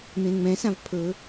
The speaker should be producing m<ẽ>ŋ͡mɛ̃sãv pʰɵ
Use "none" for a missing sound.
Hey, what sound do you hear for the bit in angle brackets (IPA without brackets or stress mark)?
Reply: ẽ